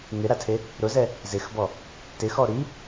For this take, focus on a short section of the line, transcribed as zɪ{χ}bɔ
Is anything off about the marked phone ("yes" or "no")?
yes